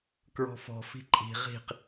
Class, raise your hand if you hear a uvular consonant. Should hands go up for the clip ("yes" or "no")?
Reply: yes